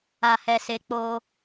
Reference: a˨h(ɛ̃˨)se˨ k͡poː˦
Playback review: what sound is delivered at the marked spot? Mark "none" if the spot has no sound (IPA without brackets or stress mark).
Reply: ɛ˨